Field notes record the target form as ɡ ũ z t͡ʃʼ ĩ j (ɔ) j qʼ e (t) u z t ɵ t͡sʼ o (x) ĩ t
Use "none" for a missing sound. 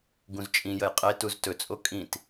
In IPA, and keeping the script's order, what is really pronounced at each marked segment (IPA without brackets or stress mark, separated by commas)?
ə, t, kʼ